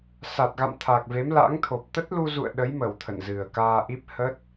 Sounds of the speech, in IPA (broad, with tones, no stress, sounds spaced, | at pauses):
s a˨˩ t̚ ɣ a̰˧˨ m t̪ʰ a˨˩ k̚ v e˨˦ m l a̰˧˥ ŋ t̪ʰ o˨˩ p̚ t̪ ə˦˥ t̚ l u˧ z ṵ˧˨ ə̯ ɗ ə˨˦ j m ə˧˩ w t̪ʰ ə̰˧˨ n z ɨ˨˩ ə̯ k aː˧ ʔ i˦˥ p̚ h ə˦˥ t̚